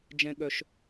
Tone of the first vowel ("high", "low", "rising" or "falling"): high